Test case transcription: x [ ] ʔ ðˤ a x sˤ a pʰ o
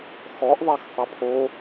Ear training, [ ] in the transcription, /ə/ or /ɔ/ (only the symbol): ɔ